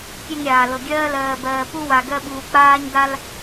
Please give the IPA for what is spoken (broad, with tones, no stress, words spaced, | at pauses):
kʲe˦ŋɾʲaː˨lɤ˨ ɡʲɜː˦lɜː˨bɜː˨ pu˦wa˨ ɡɜ˦ɓuː˨ k͡paː˦ɲda˦l